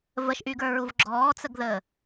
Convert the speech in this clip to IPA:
vəʃʔyɡə˞ɹuv ɡ͡ǁɔːt͡səɡðəː

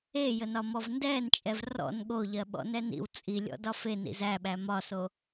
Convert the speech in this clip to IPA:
ejənɒmɔv ndɛːnt͡ʃʼɛv rɔ̰n ɠoʎɜɓɔ̰nɛ nḭw t͡sʼilʲɔ̰dɒ fenḭz æɓæ mɒso

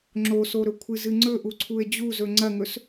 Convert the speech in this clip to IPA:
ŋ͡ǁosoɾɵkʷʰɨ zɨŋ͡ǀɵ ʔuǀʰue̯d͡ʑuzɵ ŋ͡ǀɐŋɵs

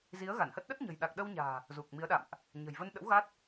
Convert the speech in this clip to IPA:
zi˨˦ə̯ ɣa˧˩nhə˦˥t̚ ɗə˦˥t̚ ɲə̤˨˩jɗa˨˩k̚ɗə˧wɲa̤ː˨˩ | zu˨˩k̚mi˨˦ə̯ɗa̰˧˨mʔ | ɲə̤˨˩jvə˧nɗə̰˧˥w ɣa˦˥t̚

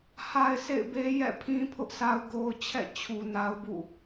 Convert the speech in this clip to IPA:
ha˨ɪ̯ sḛ˦˨ɪ̯be˦jɛ̰˦˨ pʰĩ˦ pʰʊ˦ʔsa˦ʊ̯ ɡo˦ʊ̯ t͡ɕʰɛ̰˦˨ t͡ɕʰu˨na˦ʊ̯bṵ˦˨

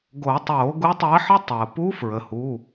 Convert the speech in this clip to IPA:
ɡo˨˩˦tˤoː˨˩˦ ɡu˧˥tˤəː˧˥ħə˥ tˤəː˩pu˧˥ fɹə˩hu˩˧˩

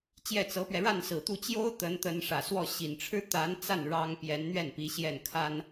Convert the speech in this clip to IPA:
t͡ɕjɛ˥˩t͡sɤ˧˥pɥɛ˧ ɻa˥˩nsɹ̩˨˩t̪u˥˩ t͡ɕjo˥ʊ̯ t̪ə˧˥nt̪ə˧˥n ʂä˨˩swɔ˥˩ ɕi˨˩nʈ͡ʂʰɻ̩˥t̪a˧˥n t͡sa˥˩n ɻɑ˥ŋ pjɛ˧˥nn̪ɥɛ˥˩npi˧˥ ɕjɛ˥˩nkʰa˥n

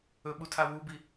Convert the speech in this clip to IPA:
ɵɓutʰa wubi

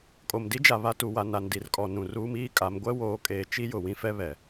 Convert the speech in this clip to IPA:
kʼo˨mdi˦d͡ʒa˨ βa˦tu˨ wa˨ na˨ndi˨rkʼɔ˨ nũ˨ ruː˦miː˦kʼa˨˦m ɡʷɛ˦woː˨˦kʼeː˨ t͡ʃi˦jʊ˨ wĩ˦fɛ˦βɛ˨

